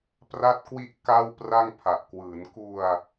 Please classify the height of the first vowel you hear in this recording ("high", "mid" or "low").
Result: low